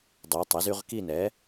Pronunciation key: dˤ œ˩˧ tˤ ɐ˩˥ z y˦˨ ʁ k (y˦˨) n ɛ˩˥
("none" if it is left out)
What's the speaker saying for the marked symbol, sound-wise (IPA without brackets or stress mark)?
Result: i˦˨